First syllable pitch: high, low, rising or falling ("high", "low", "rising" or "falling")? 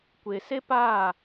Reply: low